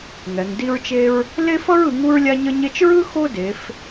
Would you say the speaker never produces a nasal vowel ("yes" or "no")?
yes